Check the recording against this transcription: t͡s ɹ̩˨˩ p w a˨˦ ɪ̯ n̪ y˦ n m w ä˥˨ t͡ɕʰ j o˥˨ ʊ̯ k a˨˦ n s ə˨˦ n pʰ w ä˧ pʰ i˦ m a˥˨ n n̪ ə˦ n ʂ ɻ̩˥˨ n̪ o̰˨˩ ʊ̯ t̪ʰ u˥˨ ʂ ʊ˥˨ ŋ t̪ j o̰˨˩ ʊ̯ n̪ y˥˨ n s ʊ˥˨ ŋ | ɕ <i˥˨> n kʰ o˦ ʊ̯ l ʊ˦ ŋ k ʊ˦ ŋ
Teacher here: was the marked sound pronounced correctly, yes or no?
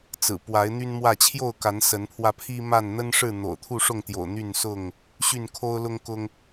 no